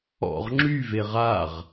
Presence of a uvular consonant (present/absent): present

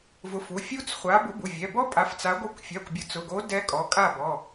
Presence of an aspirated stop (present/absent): absent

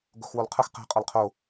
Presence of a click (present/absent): absent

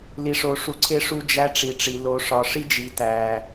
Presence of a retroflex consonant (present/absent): present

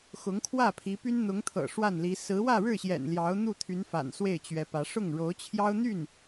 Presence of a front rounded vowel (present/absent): present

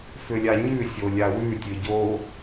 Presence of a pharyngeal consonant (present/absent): absent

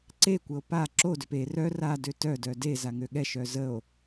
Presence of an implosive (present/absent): present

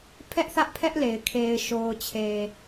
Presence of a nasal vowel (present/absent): absent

